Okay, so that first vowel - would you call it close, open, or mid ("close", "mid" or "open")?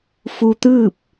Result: close